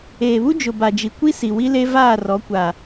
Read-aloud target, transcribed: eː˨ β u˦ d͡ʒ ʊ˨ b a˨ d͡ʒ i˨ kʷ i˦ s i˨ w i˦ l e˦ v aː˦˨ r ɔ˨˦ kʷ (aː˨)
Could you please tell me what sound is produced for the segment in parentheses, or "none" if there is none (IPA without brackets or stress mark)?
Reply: aː˨